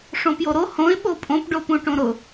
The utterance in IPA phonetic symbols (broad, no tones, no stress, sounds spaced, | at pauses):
ʂ õ p j o ɾ o h õ ɪ̯ ɓ o pʼ õ p ɖ o p ũ ʈ õ ɾ ʊ